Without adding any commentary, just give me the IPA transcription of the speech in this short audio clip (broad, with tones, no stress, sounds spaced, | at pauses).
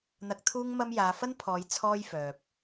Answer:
n̪ ɐ˧ k̚ t̪ʰ uː˥ ŋ m ɐ˥ m j aː˨˧ f ɐ˥ n pʰ ɔː˨˧ j t͡sʰ ɔː˥ j f œː˨ p̚